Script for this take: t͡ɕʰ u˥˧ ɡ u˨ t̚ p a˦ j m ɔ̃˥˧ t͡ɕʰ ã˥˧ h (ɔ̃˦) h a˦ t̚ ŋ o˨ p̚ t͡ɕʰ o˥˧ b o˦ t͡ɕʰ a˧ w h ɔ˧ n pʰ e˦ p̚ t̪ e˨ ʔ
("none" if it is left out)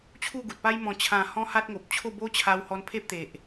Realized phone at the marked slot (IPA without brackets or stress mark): ɔ̃˦